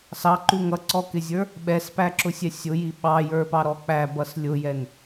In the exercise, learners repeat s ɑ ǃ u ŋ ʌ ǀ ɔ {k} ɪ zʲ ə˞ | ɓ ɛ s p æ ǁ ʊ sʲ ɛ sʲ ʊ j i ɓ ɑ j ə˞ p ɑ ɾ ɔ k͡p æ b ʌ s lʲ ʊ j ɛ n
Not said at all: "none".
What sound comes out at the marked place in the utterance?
k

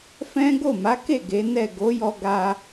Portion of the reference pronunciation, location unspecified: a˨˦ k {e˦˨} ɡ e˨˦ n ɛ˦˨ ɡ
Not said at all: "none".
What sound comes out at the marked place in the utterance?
e˦˨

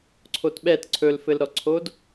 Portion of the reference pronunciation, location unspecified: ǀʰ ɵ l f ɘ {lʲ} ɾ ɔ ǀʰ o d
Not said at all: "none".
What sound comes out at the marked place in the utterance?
l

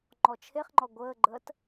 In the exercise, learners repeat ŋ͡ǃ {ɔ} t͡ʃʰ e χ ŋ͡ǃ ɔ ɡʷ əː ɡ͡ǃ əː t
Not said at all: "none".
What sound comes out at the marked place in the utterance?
ɔ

